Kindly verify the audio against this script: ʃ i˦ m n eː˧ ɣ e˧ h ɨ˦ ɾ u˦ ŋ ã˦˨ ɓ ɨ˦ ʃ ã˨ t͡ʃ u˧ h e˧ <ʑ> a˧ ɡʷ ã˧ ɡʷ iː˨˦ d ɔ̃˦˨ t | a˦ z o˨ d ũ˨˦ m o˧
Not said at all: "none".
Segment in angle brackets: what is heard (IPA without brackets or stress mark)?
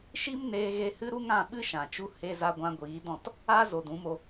z